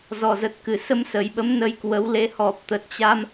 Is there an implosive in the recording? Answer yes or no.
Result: yes